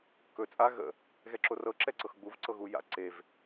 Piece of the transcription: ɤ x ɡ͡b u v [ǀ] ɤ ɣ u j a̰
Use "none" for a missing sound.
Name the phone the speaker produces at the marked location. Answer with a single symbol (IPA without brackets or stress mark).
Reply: ǀ